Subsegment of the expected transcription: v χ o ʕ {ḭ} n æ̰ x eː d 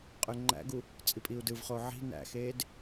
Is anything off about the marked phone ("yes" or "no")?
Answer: yes